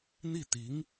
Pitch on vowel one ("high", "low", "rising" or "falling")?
falling